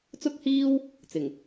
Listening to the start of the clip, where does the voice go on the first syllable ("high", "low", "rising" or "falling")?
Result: high